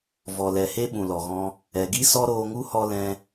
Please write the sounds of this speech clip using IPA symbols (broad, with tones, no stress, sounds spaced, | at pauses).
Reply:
v ɔ˨ l ɛ˨ h e˦ ɓ ũ˨ l ɔ˨ ɣ ɔ̃˧ | ɛ˨ ɡ i˦ s ɔ˦ ɾ oː˧ ŋ u˦ h ɔ˧ l ɛ̃˧